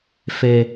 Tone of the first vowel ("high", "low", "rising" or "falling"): low